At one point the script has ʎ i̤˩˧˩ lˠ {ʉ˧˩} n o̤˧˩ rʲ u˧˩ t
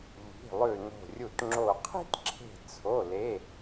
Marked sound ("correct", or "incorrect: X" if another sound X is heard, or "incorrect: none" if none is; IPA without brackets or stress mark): correct